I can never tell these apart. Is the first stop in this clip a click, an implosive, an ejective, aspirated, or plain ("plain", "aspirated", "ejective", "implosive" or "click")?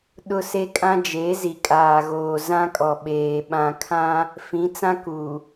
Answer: implosive